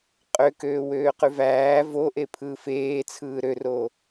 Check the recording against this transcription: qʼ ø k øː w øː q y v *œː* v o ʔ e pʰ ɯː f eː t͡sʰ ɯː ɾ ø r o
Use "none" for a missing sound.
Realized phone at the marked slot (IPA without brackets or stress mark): æː